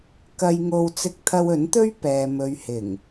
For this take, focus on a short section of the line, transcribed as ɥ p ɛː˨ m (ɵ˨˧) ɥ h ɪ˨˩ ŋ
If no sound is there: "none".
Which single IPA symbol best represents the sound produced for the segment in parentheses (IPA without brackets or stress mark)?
ɵ˨